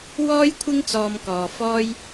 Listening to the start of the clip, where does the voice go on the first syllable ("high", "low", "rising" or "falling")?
high